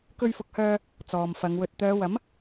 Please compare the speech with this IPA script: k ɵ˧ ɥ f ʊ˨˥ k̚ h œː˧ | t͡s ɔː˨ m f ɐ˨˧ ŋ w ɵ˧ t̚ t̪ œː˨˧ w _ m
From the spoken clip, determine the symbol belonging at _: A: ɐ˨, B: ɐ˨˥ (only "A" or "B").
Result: B